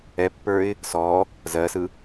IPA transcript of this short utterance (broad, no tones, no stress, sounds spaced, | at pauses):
ɛ pː ə˞ ɪ̯ | s ɔ | z ɜ s ɯ